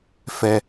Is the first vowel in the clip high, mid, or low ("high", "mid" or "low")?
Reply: mid